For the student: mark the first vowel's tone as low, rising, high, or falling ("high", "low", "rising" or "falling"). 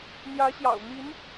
rising